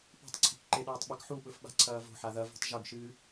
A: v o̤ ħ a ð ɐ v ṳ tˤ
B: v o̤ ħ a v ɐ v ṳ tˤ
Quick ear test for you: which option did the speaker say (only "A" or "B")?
A